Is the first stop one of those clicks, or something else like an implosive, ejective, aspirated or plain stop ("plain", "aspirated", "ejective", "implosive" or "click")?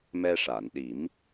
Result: implosive